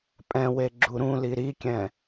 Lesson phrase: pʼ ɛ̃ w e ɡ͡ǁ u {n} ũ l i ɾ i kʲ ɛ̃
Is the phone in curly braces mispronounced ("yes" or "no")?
yes